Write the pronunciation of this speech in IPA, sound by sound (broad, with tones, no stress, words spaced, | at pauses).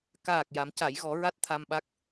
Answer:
kaː˨˩k̚ ja˨˩˦mca˨˩˦jɣɔ˨˩˦ ɹa˦˥t̚t̪ʰa˧mɓa˦˥k̚